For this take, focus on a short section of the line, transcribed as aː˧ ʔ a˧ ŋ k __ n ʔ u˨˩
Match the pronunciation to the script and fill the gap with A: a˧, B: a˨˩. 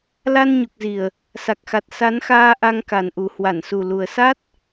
B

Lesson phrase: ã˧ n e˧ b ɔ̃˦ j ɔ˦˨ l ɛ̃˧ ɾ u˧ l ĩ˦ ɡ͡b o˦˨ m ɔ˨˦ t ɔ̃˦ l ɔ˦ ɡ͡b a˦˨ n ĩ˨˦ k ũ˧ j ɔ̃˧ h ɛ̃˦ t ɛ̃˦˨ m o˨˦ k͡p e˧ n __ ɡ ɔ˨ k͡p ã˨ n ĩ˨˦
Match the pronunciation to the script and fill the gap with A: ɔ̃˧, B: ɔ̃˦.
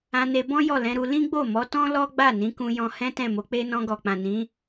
A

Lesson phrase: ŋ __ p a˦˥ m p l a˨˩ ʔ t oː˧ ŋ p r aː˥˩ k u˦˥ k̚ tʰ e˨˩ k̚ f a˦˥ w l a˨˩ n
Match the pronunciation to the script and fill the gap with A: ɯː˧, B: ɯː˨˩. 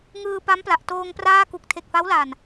A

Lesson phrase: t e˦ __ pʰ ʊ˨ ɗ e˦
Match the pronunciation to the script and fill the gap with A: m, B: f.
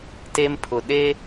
A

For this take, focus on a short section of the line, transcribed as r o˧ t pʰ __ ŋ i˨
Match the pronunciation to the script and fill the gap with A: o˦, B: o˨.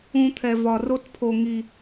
B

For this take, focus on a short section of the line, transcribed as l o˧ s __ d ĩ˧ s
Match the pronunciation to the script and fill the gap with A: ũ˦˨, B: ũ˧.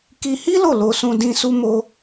B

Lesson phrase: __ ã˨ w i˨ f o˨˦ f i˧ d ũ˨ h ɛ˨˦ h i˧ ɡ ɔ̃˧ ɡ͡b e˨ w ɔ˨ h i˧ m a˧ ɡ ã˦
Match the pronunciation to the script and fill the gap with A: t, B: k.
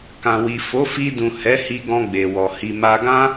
B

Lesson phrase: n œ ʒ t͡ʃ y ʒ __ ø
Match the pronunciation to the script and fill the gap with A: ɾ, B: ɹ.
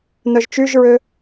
B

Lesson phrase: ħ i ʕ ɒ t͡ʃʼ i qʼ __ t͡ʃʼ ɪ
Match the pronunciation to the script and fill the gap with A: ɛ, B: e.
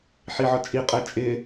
A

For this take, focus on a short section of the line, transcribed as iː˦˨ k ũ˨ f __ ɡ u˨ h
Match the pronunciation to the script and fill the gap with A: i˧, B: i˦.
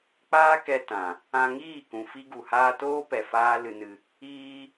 B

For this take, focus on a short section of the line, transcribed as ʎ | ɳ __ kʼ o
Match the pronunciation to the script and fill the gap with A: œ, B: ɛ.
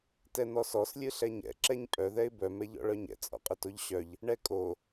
B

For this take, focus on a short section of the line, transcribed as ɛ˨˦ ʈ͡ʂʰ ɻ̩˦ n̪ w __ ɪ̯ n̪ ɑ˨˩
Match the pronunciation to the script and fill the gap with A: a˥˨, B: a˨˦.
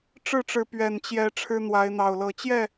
B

